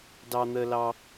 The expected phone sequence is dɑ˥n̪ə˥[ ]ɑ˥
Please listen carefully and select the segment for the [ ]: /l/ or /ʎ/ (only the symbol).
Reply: l